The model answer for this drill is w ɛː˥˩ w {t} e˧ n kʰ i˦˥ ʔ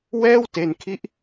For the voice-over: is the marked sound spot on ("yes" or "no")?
yes